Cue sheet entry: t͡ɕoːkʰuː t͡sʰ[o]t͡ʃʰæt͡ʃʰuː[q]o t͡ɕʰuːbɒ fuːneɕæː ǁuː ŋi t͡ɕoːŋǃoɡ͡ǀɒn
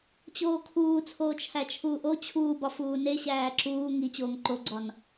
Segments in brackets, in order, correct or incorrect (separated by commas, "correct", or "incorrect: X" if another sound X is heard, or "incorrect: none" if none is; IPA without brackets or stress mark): incorrect: oː, incorrect: ʔ